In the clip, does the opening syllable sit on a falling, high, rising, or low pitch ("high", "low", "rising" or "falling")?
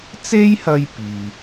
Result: high